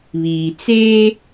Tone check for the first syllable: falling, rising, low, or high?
low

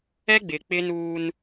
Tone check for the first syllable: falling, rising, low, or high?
high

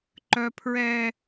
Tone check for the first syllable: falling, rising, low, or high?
high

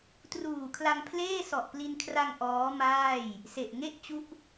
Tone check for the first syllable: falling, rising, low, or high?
low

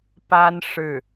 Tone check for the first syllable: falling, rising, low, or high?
high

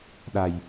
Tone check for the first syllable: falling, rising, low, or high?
low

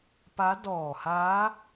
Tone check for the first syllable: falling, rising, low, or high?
rising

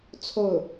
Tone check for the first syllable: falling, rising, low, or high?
falling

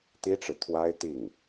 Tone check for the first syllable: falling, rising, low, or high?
high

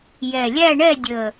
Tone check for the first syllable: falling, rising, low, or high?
low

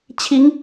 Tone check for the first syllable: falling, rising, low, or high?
rising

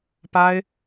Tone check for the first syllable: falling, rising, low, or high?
high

